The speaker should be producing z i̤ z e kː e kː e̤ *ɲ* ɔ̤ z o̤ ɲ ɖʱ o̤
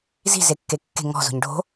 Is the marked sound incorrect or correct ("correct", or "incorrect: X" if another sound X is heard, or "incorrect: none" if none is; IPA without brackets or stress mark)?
incorrect: ŋ